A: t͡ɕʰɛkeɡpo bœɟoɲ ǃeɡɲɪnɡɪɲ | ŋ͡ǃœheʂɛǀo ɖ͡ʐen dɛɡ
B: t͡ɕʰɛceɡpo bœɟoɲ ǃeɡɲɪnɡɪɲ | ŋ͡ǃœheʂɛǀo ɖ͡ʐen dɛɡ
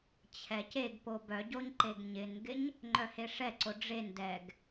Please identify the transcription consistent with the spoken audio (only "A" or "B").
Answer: B